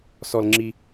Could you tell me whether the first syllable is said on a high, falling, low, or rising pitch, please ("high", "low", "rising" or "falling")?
high